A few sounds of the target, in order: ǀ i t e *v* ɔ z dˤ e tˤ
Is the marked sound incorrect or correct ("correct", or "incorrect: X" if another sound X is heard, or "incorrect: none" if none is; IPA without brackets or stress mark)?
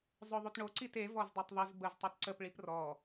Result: correct